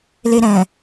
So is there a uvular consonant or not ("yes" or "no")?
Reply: no